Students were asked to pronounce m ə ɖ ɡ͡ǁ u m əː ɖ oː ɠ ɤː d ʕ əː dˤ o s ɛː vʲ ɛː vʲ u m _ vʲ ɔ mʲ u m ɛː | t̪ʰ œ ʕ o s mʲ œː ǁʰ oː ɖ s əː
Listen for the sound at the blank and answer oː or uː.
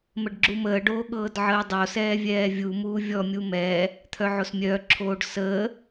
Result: uː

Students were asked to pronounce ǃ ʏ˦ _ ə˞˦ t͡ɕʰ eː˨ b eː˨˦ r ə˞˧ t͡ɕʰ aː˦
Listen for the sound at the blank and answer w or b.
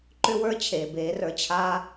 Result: w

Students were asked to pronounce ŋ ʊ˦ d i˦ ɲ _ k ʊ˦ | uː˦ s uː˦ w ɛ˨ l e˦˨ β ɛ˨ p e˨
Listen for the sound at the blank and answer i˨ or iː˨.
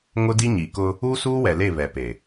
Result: i˨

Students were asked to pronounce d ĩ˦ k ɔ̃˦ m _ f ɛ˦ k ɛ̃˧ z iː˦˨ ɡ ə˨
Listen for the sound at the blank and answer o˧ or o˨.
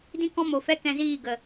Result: o˨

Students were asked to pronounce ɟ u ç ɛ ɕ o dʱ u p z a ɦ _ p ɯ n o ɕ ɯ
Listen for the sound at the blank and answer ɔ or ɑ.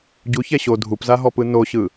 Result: ɔ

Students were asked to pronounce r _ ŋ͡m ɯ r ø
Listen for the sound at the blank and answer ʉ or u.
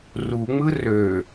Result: u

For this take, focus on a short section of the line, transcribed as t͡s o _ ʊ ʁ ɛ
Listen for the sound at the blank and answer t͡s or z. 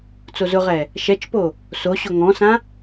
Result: z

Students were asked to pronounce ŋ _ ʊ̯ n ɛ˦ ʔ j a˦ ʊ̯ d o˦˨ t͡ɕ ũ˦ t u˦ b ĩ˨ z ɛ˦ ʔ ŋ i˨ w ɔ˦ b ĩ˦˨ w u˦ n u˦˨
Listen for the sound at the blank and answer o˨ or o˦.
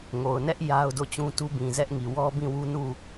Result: o˨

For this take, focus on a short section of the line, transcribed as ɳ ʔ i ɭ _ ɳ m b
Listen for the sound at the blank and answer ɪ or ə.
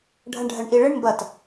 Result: ɪ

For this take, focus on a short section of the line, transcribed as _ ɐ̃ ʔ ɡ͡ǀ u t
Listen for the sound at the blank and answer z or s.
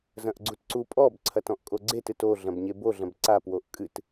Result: z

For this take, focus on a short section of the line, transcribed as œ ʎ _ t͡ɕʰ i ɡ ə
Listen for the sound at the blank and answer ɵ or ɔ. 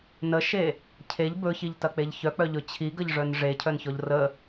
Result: ɵ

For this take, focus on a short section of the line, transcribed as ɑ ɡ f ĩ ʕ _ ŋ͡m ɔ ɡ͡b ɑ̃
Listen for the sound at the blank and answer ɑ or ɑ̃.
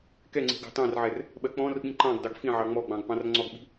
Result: ɑ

